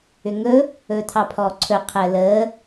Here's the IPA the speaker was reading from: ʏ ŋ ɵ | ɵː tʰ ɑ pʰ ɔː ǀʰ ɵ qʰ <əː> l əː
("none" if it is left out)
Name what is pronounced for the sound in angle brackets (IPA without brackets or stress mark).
əː